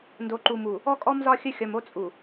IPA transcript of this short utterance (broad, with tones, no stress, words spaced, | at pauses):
ndo˨ǃu˨mu˨ | ɔ˦kʼɔ˦mzɒ˦ xʲə˦xʲɒ˨mo˦ t͡sʼu˨